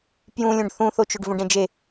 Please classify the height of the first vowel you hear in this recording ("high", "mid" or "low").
high